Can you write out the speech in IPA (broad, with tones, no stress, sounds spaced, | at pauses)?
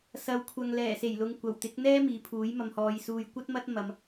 s ɐ˨ w kʷʰ ɐ˨ ŋ l ɛː˨˩ s e˨˩ j l ʊ˨ ŋ kʷ ɐ˨˩ w t̪ ɪ˨˥ k̚ n̪ ɛː˥ m iː˨˧ pʰ uː˨˥ j m ɐ˧ m h ɔː˧ j s uː˨ j kʷ ɐ˥ t̚ m ɐ˥ t̚ m ɐ˨˧ m